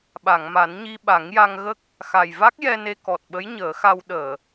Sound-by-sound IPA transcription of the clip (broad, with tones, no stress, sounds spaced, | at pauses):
ɓ a˨˩˨ ŋ m a˨˩˦ n ɲ i˧ ɓ a˨˩˦ ŋ j a˧ ŋ ɣ ə˦˥ k̚ | x a˨˩ j v a˦˥ k̚ j ɛ˧ n e˧ k ɔ˨˩ t̚ ɓ ə˧˥ j ɲ əː˨˩˦ x a˧ w ɗ əː˨˩˨